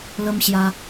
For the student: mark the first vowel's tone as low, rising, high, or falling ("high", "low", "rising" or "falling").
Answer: high